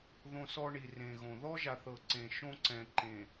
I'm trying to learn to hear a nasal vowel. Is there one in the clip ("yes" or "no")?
yes